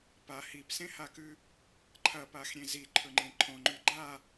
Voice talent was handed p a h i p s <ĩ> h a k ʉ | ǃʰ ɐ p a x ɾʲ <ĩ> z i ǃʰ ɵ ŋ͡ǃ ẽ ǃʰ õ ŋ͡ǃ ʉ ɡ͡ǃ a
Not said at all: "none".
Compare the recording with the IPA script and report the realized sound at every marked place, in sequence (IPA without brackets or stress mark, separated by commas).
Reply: ẽ, ẽ